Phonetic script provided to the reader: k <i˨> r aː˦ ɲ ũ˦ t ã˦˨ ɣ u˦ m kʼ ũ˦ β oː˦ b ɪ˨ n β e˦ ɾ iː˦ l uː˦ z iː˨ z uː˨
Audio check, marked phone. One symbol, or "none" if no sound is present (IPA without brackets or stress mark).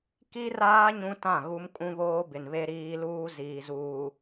i˦